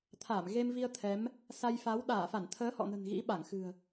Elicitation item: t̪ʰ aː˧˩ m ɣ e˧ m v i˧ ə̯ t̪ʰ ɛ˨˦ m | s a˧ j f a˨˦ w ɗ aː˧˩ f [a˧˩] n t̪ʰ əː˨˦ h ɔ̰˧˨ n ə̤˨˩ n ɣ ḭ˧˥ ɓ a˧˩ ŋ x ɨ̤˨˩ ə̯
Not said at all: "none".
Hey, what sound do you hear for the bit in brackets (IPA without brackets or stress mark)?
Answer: a˧˩